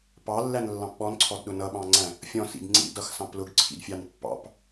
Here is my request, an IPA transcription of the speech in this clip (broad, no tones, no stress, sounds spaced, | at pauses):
p ɑ lː æ n lː ɑ̃ p ɓ ɔ n ǀʰ ɔ d ɗ ʊ n ʌ ɓ ɑ̃ ŋ͡ǀ æ̃ | fʲ ɔ̃ s ḭ d ŋ͡ǀ ḭ d ʌ x s ɑ̃ p l ʊ ɡ ǀʰ ḭ d fʲ ɑ n pː ɑ̰ p